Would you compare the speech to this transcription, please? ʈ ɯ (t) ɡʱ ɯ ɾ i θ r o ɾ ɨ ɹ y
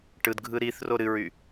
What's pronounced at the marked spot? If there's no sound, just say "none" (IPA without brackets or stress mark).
d